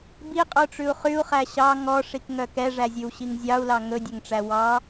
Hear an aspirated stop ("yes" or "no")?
no